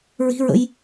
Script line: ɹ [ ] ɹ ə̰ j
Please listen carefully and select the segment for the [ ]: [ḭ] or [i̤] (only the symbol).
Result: i̤